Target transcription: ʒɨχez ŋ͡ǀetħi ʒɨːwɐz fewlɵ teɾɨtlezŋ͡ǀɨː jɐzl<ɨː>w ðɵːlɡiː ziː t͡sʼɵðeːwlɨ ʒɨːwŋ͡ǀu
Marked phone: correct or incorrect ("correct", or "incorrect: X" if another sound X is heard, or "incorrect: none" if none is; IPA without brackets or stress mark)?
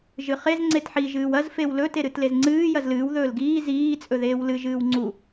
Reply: correct